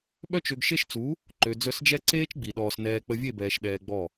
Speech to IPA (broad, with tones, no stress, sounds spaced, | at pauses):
ɓ œ˧ t͡ʃ ø˨ ɡ ʃ e˦ ʃ t͡s u˨˦ | ǃ ø˨ d͡z œ˧ s d͡ʒ ɛ˦ ǀ eː˦ t͡ʃ ɡ͡b i˨ ɗ ɔː˧ s n ɛː˦ k͡p ə˧ vʲ e˦˨ b ɛː˨ ʃ ɗ ɛː˧ ɡ͡b ɔ˦˨